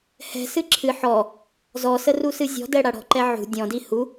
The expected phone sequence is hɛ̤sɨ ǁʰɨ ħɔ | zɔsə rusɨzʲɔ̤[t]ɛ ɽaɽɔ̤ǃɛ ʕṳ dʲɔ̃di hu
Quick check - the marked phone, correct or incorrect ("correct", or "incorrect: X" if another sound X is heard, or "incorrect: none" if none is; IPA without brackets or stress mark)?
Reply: incorrect: d